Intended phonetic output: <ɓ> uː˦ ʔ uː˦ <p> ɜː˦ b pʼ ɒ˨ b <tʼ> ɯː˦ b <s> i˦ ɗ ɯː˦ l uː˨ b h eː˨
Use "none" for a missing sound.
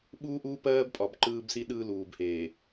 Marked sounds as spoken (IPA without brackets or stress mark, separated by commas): ɓ, p, ǃ, s